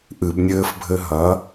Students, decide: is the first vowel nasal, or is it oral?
oral